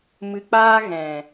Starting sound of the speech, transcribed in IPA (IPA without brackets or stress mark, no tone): m